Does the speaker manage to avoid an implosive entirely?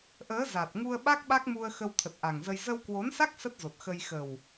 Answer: no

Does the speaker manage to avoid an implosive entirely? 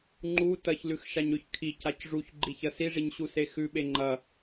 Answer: no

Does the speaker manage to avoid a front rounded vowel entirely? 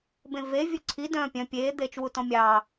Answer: no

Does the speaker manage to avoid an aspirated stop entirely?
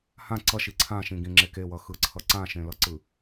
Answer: no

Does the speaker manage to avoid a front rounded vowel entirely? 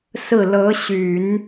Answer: no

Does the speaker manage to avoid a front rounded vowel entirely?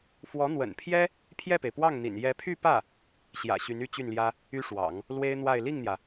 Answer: no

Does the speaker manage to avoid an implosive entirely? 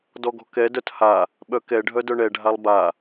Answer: no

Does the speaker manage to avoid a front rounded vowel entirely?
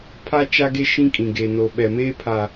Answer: yes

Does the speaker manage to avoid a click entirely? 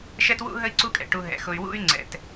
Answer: no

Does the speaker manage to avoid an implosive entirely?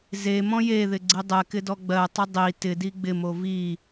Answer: yes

